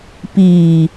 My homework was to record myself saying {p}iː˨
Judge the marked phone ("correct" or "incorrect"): correct